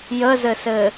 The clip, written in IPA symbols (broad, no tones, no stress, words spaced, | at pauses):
jəzɘsɘ